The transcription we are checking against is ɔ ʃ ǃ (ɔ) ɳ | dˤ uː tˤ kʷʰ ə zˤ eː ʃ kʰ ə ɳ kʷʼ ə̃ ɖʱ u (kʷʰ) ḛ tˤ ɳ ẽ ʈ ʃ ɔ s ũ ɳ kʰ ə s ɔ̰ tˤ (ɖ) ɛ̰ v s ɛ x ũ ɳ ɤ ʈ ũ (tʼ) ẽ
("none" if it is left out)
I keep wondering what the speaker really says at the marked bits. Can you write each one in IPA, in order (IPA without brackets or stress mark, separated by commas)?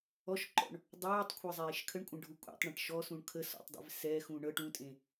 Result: ɔ̰, kʷʼ, dˤ, tʼ